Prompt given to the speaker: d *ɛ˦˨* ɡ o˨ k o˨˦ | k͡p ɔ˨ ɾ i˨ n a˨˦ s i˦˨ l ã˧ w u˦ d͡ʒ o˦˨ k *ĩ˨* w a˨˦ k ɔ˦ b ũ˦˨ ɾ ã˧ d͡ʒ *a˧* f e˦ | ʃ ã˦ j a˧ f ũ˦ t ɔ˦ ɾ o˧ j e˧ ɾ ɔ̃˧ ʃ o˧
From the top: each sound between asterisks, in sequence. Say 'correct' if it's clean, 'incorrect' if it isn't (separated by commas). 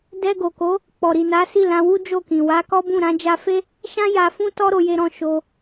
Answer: incorrect, correct, correct